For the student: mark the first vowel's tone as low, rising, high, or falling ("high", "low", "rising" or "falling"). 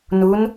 rising